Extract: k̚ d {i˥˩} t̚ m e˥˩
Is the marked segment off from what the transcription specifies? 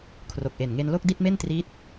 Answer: no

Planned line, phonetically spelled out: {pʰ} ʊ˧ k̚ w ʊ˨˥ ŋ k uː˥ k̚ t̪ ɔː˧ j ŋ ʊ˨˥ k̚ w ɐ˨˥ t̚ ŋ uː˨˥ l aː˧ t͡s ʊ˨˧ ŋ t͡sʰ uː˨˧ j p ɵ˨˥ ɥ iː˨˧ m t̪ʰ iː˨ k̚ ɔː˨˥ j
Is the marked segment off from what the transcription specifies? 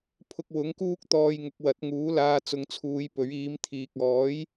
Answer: no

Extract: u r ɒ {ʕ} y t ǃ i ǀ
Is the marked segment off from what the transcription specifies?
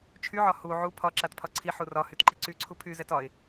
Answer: yes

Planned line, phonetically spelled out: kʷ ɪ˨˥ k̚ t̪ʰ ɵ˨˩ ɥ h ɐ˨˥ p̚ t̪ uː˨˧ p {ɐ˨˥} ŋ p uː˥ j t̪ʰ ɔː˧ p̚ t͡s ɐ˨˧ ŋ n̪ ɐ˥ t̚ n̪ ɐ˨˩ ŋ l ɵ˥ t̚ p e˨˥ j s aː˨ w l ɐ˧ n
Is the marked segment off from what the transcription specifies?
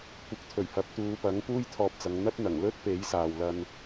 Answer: no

